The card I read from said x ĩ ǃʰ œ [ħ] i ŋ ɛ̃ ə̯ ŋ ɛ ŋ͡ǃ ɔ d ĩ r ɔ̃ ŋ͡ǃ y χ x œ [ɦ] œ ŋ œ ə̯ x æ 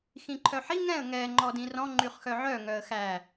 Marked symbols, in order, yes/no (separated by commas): yes, no